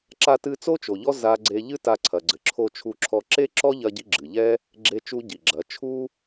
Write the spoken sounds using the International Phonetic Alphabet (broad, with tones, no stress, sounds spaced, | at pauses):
ǁ a˧ t ɨ˧ t͡s o˦ t͡ʃ o˨ ʎ ɔ˦ z a˧ ɡ͡ǀ e˧ ʎ ɨ˦ t a˧ ǀʰ ɐ˨ ɡ͡ǀ ɘ˨ ǁʰ o˧ t͡ʃʰ u˧ ǁʰ ɔ˧ ǁ e˦ ǁ ɔ˦ ʎ ɐ˦ ɟ i˦ ɡ͡ǁ ɨ˨ ʎ ɛ˦ | ɡ͡ǁ e˦ t͡ʃ u˦ ɟ i˨ ɡ͡ǁ ɐ˨˦ t͡ʃʰ u˦